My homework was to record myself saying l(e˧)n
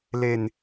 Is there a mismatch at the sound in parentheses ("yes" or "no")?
no